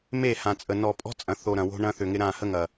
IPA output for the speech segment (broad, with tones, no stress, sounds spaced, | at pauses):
m e˦˨ h ã˨ t͡sʼ ə˨ n ɔ˨ pʼ ɔ̤˦ t͡sʼ ɐ̃˨ θ o˨ ɾ ɐ̃˨ w o̤˦ ɳ ɐ̃˦ θ ʏ˨ ŋ ɪ˦ ɾ ã˦˨ h ə˦ ŋ ɐ˨